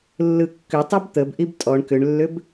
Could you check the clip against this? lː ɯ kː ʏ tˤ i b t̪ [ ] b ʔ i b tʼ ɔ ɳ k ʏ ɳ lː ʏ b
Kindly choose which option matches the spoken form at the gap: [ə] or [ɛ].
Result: ə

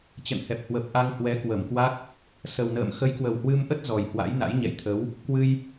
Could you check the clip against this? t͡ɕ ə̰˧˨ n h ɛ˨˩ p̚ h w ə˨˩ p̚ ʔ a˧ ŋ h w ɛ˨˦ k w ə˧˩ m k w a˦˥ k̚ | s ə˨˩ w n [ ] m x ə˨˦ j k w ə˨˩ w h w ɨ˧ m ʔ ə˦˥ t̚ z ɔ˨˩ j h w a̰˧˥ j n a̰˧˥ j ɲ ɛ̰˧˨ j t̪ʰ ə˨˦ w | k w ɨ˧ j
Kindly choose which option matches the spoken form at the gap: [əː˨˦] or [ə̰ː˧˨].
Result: ə̰ː˧˨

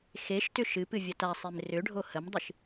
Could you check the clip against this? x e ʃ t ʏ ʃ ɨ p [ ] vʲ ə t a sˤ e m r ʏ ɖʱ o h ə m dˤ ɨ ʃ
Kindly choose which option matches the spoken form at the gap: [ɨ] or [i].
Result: ɨ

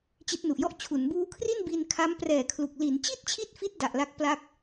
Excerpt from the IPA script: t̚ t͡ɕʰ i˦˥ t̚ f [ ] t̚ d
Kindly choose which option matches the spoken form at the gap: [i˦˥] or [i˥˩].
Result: i˦˥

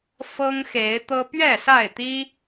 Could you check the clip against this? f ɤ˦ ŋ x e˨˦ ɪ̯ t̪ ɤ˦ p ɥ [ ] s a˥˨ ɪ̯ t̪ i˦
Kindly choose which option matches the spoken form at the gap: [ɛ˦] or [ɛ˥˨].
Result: ɛ˥˨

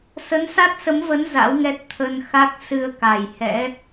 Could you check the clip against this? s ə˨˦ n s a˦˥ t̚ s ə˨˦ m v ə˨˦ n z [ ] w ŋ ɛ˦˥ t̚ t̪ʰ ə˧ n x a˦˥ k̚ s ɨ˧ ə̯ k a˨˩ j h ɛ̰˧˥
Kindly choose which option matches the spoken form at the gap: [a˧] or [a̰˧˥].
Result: a̰˧˥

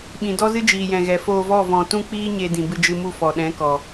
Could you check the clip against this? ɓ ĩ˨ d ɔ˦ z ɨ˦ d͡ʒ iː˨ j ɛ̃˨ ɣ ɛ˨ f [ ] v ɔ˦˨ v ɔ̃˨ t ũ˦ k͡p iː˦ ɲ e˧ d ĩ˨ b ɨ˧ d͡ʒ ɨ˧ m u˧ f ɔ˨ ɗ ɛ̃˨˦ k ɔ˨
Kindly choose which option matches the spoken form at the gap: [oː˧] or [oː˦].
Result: oː˧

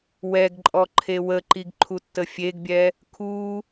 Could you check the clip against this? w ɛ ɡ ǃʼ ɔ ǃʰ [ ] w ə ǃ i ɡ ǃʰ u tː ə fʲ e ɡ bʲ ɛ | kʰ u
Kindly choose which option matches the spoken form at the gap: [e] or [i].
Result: e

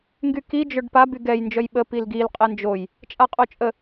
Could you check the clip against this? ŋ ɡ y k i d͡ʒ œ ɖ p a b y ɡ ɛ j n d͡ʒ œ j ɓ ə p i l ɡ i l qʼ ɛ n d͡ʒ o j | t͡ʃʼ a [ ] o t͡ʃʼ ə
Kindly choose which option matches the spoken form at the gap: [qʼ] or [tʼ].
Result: qʼ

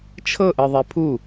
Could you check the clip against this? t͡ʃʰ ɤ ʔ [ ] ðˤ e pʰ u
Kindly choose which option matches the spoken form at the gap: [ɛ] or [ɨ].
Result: ɨ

